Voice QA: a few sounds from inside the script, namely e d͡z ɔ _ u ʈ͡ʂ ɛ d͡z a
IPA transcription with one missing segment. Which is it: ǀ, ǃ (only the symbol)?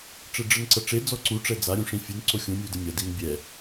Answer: ǀ